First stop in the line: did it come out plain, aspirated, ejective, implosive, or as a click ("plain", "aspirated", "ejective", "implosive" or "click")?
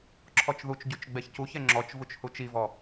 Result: click